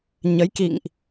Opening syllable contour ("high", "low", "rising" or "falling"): rising